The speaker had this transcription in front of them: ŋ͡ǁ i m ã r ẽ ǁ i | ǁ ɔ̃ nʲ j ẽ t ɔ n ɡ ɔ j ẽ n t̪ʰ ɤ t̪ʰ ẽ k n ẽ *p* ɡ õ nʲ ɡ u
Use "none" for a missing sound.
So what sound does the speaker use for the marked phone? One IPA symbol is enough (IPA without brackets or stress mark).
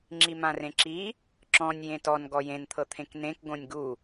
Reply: k